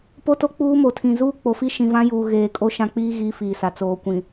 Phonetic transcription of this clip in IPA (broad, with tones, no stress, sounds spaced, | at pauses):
p o˦ t o˦ k͡p uː˦ m o˨ tʰ ĩ˨ z uː˦ k͡p o˨ f i˦ ʃ ĩ˨ v ã˦ j uː˨ ɣ eː˨ kʼ o˦ ʃ ã˦ k͡p iː˦ ɣ iː˦ f iː˨ s a˨ t͡s oː˨ kʷ ĩ˨